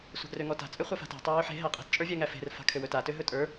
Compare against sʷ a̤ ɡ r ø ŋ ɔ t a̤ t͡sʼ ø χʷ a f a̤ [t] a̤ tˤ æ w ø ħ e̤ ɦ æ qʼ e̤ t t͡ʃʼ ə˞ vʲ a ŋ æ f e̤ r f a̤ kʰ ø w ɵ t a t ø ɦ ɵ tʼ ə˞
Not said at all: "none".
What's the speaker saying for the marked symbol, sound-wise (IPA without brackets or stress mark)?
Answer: t